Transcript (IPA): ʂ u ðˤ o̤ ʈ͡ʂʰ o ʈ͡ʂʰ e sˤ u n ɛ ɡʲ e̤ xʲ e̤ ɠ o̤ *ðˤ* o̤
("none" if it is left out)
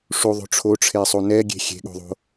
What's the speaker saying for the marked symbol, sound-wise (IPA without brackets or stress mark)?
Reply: ðˤ